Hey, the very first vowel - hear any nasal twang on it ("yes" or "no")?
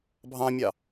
yes